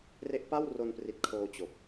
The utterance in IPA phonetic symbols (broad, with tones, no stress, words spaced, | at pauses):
re˦˥ʔpa˥˩w ro˧npri˨˩t̚kʰoː˧ t͡ɕo˨˩k̚